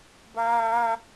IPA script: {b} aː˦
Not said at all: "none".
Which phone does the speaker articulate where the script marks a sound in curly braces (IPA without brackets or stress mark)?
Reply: b